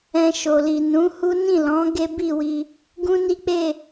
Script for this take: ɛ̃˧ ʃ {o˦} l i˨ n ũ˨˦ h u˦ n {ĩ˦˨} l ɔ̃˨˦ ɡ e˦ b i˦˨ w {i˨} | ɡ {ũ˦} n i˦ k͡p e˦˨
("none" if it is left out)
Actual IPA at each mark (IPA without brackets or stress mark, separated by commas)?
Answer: o˨, ĩ˦˨, i˧, ũ˦